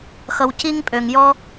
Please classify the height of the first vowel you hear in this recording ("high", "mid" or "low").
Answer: mid